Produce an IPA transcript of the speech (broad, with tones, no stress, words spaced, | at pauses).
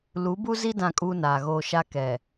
lu˨˦bu˦zi˦ dã˦˨kʼuː˦naː˨ɣoː˦ ʃa˦kɛ˨